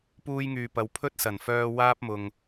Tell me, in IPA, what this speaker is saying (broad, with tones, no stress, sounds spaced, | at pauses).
p uː˥ j ŋ yː˧ p ɐ˨ w pʰ ɵ˥ t̚ s ɐ˨˩ n f œː˧ w aː˥ p̚ m ʊ˨ ŋ